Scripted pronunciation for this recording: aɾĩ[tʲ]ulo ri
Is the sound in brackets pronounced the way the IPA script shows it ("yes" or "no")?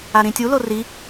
yes